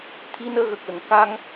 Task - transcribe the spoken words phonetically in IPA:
t̪ʰ i˧ n əː˧ ɣ ə˨˩ k̚ l ə˨˩ ŋ k a˧ ŋ

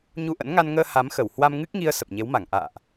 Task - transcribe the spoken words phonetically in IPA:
ɲ u˧ ʔ ə̰˧˥ n ŋ a˧ n ŋ əː˧ h a˨˦ m x ə˧˩ w h w a˧ m ŋ ɨ˦˥ k̚ ŋ i˧ ə̯ s ə˨˩ p̚ ɲ e˨˦ w m a˧˩ ŋ ʔ a̰ː˧˨ ʔ

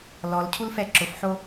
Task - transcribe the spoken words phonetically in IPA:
l ɔ l cʰ u l f ɛ ǁ ʊ f ħ o

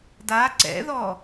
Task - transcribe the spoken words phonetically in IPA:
d a ǀ ɛ̰ ð ɔ

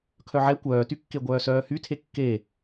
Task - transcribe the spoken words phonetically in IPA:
kʰ œ ʕ ɛ kʷ œː t y kː e ɡʷ œː s œː h y tʰ e kː e

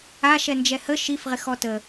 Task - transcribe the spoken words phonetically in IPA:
a ʃ ɛ n d͡ʒ ɛ h ə ʃ i f ʁ ɪ x ɔ t ə

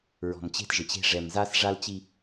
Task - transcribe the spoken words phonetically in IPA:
ɹ ɔ̤˨ m t͡ɕ e̤˦ t ʒ ɪ˨ t͡ɕ e̤˦ ʐ ɛ˨ m z a˦ s ʐ a˦ l t͡ɕ i˦

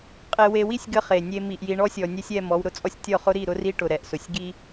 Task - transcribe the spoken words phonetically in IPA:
qʼ e˨ w e˨ w i˦ sʲ ɡ ə˦ χ e˨ nʲ e˦ m i˨ ʔ j i˨ ɳ ɔ˦ sʲ ɔ˨ nʲ ɛ˦ sʲ ɛ˦˨ m ɔ˨˦ w ɾ ʊ˨ t͡sʼ ɔ˦ sʲ tʲ ɔ˦˨ χ ʊ˦ ɾ i˦˨ ɾ ʊ˦ r i˦ ʈ ʊ˨ ɾ ɛ˨ ʔ s ʊ˨ sʲ ɡ i˦

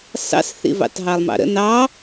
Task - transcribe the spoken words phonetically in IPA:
s ɑ̰ s θ ḭ v ɑ̰ t ɦ ɑ lˠ m ɑ̰ ɾ ə̰ n ɑ

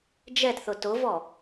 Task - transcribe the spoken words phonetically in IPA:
d͡ʒ ɛ t θ ʊ t ʊ v ɔ

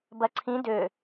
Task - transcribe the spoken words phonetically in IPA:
b ɐ ǀʰ ĩ d ø

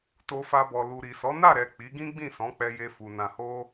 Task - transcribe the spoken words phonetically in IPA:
t o˧ f a˧ b ɔ˨ l u˨ ɾ i˨ s ɔ˨˦ n a˦˨ ɾ ɛ˨ k͡p i˨˦ ɡ ĩ˦ ɡ͡b ĩ˦˨ s ɔ̃˨˦ k͡p ɛ˧ j e˧ f u˨ n ã˨ h o˧

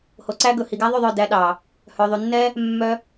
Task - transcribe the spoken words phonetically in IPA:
h o˧ ǀ æ˥ ɡ ɵ˧ h i˧ ɡ æ˥ ðˤ y˥˨ ðˤ œ˥˨ d æ˥ ɗ ɑ˧ | h œ˧ ðˤ y˧ nː ɛ˥ | mː œ˥

